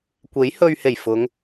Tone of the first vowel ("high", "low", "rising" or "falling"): rising